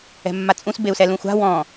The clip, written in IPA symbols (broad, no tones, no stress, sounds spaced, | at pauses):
ɛ̤ mː a t͡sʼ ũ s b e u̯ s ɛ l ũ xʷ a̤ w ɔ̃